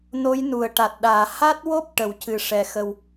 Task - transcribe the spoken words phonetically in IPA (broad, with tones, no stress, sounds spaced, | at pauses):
n o˧˥ j n u˨˩˨ ə̯ ʈ a˨˩ t̚ ɗ aː˨˩˨ h a˦˥ t̚ w o˦˥ p̚ ʈ ə˨˩˨ w c ɨ˨˩˨ ʂ ɛ˨˩ x ə˨˩ w